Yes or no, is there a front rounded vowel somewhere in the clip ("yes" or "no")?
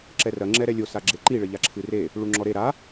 no